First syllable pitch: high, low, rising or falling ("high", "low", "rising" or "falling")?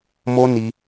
high